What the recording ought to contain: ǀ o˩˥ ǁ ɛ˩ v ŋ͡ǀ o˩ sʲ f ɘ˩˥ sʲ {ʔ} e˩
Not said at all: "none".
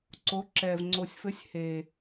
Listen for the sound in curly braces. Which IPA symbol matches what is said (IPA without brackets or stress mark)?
h